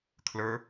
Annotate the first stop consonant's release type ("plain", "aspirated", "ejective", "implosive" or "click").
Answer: aspirated